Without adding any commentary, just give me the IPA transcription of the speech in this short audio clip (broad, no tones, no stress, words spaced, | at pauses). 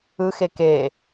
ɯxe ke